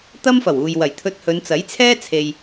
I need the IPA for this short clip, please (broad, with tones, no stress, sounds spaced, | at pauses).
t̪ ɐ˥ m f ɐ˨˩ w uː˨ j w ɐ˨˩ j t̪ʰ ɵ˧ t̚ h ɵ˨˧ n t͡s ɐ˨˥ j t͡sʰ ɛː˥ t͡sʰ e˨ j